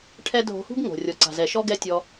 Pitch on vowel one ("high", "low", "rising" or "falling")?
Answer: high